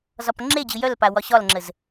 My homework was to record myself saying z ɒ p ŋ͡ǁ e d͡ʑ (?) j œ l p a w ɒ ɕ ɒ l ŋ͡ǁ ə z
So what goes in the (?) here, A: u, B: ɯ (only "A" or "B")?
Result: B